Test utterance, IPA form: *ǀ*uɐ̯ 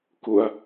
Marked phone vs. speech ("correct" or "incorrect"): incorrect